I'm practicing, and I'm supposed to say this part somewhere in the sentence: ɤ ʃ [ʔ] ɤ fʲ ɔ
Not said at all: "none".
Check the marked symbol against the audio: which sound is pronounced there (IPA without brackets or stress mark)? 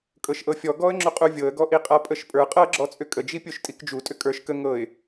ʔ